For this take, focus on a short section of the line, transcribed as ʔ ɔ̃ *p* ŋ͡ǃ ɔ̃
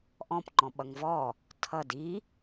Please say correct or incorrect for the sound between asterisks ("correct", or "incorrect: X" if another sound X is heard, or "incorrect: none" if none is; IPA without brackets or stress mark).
correct